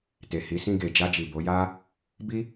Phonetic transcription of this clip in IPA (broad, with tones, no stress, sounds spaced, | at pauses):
t e˨ h i˨˦ s ĩ˧ ɡ e˨ d͡ʒ a˧ d͡ʒ i˨ b o˨˦ j a˦ | b i˦